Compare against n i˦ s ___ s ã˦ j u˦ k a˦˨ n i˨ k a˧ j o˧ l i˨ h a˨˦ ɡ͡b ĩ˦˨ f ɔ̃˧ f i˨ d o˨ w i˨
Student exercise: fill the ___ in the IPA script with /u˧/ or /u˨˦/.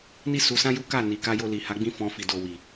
u˧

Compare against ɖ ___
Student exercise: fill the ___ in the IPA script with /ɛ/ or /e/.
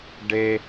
e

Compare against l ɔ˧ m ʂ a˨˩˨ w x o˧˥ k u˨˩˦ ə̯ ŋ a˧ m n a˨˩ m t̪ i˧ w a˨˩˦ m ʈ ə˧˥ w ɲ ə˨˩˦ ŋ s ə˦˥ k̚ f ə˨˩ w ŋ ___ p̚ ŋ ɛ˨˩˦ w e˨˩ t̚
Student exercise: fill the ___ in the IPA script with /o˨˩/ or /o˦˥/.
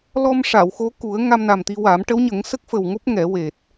o˦˥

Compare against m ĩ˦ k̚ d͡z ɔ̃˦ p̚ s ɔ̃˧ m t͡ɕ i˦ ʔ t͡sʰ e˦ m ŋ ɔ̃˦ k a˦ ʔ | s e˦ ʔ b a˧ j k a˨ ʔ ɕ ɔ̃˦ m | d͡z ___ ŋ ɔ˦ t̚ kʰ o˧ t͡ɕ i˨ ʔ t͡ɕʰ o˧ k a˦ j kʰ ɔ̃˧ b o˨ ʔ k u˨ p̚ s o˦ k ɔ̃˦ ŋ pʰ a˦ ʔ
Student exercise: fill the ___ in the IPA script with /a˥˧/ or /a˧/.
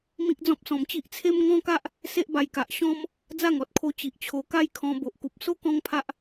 a˥˧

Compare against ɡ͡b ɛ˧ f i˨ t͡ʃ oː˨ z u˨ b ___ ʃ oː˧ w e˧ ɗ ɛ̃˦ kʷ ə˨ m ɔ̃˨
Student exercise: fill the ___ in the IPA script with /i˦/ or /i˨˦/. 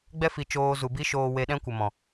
i˦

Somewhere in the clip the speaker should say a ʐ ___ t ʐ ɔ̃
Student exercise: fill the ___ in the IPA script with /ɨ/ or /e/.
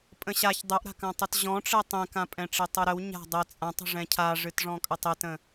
ɨ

